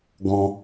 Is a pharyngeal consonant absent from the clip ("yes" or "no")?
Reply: yes